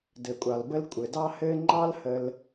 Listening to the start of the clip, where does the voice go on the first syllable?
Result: low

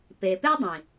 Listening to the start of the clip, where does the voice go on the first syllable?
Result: low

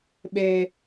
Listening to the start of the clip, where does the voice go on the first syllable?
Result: low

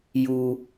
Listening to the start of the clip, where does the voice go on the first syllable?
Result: high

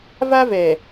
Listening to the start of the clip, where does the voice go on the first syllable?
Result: high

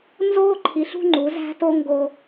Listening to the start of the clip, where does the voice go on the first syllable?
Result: falling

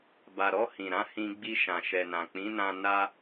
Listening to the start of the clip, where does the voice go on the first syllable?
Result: low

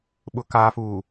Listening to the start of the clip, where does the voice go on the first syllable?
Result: low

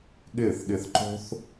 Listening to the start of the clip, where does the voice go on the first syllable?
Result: falling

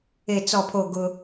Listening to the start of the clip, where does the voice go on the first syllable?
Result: low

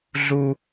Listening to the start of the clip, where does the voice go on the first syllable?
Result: high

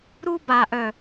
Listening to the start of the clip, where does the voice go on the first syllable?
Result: high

